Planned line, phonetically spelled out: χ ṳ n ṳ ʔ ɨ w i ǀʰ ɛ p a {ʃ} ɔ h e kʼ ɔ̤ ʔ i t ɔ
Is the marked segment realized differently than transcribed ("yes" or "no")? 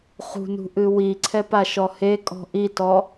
no